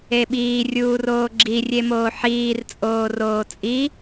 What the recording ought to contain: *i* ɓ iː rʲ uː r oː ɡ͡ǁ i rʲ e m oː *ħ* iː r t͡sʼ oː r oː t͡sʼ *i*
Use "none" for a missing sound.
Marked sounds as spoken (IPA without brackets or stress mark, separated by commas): e, ħ, i